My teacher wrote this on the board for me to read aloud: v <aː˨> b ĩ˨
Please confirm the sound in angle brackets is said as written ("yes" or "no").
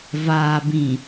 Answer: yes